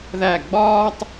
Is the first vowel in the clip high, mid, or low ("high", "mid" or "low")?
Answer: low